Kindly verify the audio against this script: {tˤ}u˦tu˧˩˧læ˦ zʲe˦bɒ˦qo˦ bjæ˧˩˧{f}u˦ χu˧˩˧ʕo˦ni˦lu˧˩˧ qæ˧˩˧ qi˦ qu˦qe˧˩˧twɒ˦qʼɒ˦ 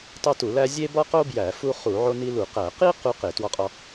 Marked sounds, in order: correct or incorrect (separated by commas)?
correct, correct